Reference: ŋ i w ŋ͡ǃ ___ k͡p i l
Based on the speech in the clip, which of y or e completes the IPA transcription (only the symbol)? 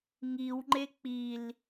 e